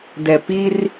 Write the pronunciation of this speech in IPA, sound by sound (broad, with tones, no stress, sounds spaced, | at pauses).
d ɛ˨ p i˦ r